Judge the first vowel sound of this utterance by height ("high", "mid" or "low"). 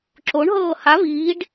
mid